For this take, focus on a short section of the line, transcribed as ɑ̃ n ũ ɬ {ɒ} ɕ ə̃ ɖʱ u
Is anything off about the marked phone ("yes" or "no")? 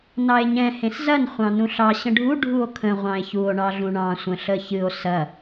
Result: yes